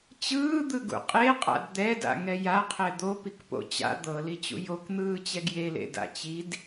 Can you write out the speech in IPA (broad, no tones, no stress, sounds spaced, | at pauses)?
t͡ɕ ɯː d̪ ɯ ɡ ṵ qʼ e qʼ a̰ d d̪ ɛ d a̰ ŋ ɛ j a qʰ ɛ d̪ o p i k p o̰ t͡ɕ a̰ d̪ ɤ l i t͡ɕ ṵ j o k n̪ ɯː t͡ɕ ɛ ɡ j e l ḛ d a̰ t͡ɕ i d